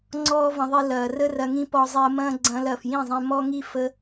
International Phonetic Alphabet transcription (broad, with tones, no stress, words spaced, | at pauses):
ŋ͡ǀɔː˦və̃˧ðˤi˧ lɐː˨ rə˦rɐ˧ŋĩ˦ pɔ˧zˤi˧ə̯mɐ̃ː˦ ɡ͡ǀɐ̃ː˧lɐː˨fjĩ˦˨zˤẽ˧ mɔ˦ŋi˦ fə˦